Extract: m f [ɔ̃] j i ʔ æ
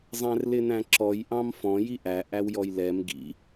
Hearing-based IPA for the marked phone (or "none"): ɔ̃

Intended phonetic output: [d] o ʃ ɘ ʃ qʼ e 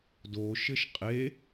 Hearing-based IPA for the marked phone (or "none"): d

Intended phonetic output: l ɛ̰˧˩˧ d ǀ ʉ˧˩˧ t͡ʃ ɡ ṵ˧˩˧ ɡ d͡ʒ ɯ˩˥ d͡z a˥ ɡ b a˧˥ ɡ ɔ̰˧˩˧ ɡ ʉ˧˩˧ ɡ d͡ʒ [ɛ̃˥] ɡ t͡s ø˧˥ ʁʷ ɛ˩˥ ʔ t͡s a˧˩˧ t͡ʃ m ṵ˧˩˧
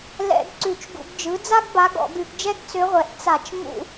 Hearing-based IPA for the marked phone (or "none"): ɛ˥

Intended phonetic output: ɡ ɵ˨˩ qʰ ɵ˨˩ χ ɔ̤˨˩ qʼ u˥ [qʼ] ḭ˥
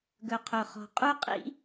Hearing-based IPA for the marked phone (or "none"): qʼ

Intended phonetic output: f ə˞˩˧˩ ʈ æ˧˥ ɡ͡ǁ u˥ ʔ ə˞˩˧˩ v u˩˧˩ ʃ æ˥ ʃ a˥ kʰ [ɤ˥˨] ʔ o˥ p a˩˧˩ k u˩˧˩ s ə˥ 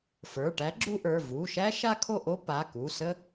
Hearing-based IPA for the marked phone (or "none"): o˥˨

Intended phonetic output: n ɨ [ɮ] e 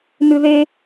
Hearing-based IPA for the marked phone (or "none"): ð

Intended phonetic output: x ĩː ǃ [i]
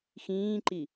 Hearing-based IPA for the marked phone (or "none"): i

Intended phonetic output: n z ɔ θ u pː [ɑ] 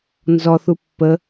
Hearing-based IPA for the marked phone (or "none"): ə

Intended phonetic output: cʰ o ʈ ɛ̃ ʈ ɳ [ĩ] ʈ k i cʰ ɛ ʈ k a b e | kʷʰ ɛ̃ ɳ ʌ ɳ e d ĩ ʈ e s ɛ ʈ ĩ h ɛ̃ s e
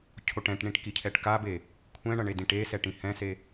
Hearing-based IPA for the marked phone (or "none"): ĩ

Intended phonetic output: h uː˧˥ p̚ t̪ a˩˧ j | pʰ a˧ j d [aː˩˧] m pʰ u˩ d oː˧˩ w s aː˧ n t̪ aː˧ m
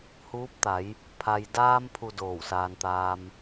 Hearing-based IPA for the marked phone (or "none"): aː˧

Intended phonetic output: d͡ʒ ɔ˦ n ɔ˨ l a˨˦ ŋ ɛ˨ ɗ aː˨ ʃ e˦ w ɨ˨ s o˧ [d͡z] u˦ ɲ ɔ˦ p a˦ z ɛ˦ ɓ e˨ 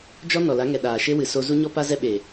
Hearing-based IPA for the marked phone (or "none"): z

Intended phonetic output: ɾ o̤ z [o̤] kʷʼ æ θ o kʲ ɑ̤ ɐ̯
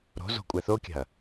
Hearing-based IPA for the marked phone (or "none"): o̤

